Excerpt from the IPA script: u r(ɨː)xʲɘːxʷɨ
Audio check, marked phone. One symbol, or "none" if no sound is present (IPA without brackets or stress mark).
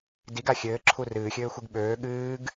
ɨː